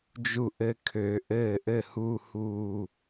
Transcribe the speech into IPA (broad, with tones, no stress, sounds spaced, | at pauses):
d͡ʒ u˧˩ ʔ ɘ˧˩ kʰ ø˨˩˦ ʔ ɘː˥˩ ʔ ɘ˥˩ h u˥˧ h uː˧˩